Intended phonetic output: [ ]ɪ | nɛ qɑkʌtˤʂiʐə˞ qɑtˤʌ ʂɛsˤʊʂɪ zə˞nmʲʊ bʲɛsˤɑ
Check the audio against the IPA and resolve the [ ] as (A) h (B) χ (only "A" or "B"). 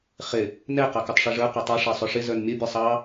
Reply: B